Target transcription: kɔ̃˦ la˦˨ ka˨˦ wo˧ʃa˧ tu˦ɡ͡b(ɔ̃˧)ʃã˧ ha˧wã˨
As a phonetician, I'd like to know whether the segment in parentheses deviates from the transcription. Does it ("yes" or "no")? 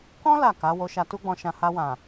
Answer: no